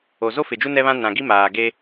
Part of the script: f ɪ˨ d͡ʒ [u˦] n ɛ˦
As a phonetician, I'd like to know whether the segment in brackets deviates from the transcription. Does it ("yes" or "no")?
no